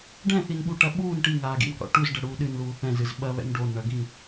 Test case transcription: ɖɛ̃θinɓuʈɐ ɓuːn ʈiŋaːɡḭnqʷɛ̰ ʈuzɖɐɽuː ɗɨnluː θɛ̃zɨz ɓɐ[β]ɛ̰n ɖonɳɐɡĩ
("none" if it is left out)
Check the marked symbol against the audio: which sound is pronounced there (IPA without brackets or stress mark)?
β